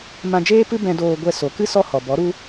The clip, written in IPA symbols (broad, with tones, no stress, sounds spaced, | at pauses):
m ã˧ d͡ʒ eː˦ p ɨ˦ b ɛ̃˧ d oː˧ ɡʷ ɛ˧ s o˨ k ɨ˦ s ɔ˦ h ɔ˨ b ɔ˨˦ ɾ u˦